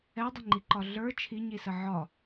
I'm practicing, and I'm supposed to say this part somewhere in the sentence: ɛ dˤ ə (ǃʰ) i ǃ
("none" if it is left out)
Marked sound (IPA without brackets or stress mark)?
ŋ͡ǃ